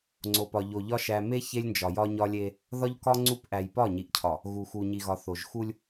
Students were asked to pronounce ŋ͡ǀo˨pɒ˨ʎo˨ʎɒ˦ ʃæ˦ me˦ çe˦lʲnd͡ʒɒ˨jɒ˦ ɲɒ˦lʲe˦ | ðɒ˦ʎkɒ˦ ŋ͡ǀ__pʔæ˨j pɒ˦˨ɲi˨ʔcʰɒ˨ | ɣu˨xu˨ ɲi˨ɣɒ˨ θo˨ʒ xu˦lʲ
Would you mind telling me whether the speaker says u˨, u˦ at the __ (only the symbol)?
u˦